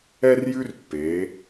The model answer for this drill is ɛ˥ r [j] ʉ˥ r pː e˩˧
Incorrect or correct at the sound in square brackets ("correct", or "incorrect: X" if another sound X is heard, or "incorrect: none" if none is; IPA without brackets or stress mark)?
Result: correct